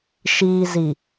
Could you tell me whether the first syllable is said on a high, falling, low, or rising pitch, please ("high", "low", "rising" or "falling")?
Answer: low